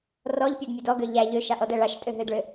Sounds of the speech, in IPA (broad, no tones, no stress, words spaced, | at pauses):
rɔʎpʲʊdmʲʊd ɔɡø ʎæ ʎøʃɑʔɔdæ ɭɑʃtʼøɦødɭø